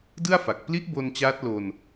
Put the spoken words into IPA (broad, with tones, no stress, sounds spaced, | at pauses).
d ɯ˥˩ a̯ f a˨˩ k̚ p l i˦˥ ʔ b o˧ n t͡ɕ aː˦˥ t̚ l o˧ n